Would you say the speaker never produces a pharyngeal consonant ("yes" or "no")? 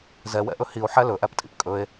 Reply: no